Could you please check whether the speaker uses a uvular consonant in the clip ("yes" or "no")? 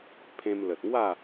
no